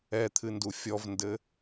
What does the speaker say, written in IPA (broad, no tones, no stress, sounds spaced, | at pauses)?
ɛ t̪ʰ ɨ n d u fʲ ɔ v n d ɘ